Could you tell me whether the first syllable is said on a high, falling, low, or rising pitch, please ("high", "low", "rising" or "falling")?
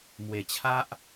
low